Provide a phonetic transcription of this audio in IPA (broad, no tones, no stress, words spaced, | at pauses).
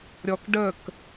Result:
ɾʲɔkɖək